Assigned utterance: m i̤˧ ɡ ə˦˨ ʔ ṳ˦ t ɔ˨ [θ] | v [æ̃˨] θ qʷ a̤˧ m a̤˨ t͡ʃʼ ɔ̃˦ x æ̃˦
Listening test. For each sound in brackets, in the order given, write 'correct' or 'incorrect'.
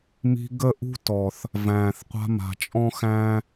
correct, incorrect

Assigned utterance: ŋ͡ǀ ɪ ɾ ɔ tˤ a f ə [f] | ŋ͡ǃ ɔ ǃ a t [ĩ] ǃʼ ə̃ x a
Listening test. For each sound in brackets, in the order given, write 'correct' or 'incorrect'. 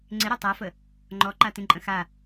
incorrect, correct

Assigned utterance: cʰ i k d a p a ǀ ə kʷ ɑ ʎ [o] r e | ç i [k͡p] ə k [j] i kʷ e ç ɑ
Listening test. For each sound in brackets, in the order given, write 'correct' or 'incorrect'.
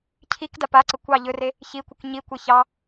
incorrect, incorrect, incorrect

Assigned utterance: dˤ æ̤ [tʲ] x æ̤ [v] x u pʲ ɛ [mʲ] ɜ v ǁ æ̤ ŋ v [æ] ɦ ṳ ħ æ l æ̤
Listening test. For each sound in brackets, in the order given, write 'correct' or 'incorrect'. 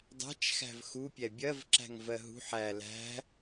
incorrect, correct, incorrect, incorrect

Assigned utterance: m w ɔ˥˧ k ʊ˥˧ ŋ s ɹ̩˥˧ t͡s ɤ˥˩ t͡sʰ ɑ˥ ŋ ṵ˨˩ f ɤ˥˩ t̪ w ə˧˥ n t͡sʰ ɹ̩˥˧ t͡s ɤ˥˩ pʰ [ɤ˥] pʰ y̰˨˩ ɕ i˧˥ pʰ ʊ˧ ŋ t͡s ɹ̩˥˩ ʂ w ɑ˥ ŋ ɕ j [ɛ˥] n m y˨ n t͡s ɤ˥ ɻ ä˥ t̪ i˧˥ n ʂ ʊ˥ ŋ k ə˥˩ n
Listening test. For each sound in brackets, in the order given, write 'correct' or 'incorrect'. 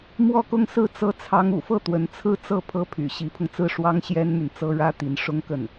correct, correct

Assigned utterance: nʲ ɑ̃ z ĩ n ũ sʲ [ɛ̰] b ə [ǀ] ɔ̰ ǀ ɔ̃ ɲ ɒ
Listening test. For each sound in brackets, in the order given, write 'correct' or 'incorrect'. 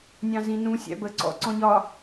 incorrect, correct

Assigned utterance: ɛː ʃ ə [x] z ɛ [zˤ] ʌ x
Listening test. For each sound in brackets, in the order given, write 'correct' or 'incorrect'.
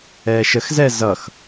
correct, incorrect

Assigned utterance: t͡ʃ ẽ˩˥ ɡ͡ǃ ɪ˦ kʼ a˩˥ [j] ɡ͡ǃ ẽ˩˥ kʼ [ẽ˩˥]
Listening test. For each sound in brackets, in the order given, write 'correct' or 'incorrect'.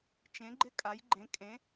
correct, correct

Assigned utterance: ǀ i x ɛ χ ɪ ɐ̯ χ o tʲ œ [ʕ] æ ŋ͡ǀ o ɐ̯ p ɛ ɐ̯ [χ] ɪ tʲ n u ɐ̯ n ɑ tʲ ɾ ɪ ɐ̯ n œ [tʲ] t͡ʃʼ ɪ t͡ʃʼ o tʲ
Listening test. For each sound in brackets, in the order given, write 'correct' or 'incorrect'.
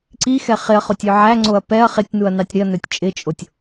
correct, correct, correct

